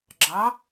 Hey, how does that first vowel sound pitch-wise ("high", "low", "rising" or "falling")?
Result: rising